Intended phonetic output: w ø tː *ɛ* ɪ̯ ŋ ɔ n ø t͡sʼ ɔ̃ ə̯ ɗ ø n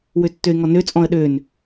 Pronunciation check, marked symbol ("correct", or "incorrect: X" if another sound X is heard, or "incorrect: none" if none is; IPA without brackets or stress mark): incorrect: ø